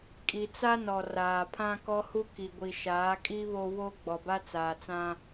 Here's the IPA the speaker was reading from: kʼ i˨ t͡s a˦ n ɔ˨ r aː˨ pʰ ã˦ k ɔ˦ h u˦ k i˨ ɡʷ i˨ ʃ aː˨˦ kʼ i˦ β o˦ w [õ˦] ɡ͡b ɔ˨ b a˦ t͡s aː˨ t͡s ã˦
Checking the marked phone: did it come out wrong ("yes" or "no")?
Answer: yes